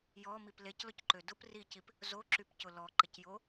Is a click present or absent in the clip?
present